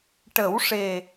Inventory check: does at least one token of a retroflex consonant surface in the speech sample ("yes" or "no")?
yes